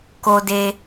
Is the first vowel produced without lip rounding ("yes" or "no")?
no